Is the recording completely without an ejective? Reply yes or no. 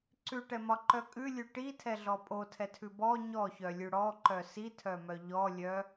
no